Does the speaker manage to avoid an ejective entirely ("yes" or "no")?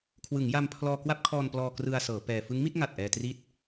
yes